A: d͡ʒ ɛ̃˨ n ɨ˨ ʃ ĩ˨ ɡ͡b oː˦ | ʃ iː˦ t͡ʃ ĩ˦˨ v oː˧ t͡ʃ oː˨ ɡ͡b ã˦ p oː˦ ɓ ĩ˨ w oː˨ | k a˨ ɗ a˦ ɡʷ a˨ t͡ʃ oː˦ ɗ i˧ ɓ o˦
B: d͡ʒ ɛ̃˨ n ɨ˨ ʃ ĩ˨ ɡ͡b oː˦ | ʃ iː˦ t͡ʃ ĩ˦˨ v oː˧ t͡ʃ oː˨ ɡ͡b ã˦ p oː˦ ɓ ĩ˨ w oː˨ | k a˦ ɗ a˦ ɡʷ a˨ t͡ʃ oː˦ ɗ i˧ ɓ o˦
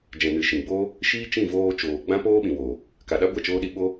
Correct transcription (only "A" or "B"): A